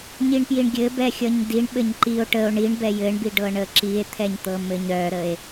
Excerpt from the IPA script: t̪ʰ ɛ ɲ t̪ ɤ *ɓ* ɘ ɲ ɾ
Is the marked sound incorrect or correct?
incorrect